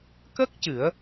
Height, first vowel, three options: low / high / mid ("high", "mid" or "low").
mid